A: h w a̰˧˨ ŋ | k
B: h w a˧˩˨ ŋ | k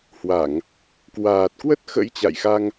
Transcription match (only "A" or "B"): B